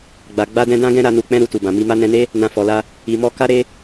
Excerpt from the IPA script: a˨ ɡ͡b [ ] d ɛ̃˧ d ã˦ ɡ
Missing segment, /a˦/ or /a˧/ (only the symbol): a˧